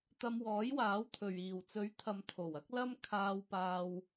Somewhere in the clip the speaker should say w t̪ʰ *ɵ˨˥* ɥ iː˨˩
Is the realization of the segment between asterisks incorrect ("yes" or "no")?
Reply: yes